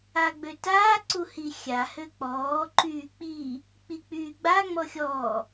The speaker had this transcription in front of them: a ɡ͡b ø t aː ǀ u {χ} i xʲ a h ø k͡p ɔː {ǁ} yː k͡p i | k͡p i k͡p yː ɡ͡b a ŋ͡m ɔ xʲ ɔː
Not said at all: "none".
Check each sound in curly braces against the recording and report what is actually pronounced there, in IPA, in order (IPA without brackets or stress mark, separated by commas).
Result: h, ǃ